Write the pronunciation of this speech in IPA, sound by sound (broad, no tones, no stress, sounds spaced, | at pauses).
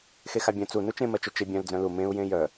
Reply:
x e x a bʲ œ̃ t͡s u n u t͡ʃ ẽ m ɜ t͡ʃ œ t͡ʃ e bʲ œ̃ l d͡z œ̃ l u m ẽ u̯ j ẽ j œ